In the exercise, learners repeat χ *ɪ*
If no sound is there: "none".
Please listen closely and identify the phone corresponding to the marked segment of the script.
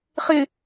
ɪ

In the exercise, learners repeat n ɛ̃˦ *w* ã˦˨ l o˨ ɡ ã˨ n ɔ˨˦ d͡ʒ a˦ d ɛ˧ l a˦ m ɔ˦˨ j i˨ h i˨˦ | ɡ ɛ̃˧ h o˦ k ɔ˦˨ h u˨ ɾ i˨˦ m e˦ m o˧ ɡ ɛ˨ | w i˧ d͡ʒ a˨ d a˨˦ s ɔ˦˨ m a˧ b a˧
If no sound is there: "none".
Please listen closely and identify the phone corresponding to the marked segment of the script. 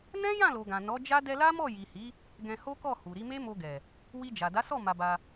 j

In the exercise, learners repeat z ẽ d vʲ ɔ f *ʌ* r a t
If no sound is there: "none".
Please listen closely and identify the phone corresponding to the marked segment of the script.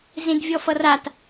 ʌ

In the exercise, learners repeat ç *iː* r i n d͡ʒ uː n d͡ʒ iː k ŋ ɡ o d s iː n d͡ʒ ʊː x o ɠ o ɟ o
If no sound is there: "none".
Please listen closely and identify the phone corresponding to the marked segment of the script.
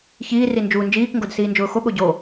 iː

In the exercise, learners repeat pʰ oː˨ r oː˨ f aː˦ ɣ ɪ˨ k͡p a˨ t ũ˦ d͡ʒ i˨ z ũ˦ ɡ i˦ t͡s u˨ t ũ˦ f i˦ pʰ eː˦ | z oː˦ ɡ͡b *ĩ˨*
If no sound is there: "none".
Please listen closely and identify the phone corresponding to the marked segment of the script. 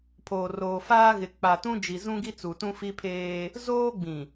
ĩ˨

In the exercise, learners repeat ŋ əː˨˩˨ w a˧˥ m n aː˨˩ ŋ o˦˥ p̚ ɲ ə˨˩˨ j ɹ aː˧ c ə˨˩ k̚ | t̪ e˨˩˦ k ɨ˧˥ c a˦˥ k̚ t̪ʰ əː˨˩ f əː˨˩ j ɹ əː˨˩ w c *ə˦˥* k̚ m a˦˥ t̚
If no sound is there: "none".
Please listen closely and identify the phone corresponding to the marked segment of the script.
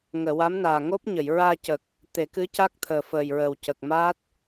ə˨˩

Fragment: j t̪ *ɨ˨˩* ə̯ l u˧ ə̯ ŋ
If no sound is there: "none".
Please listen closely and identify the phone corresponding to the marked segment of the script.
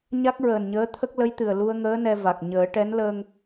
ɨ˨˩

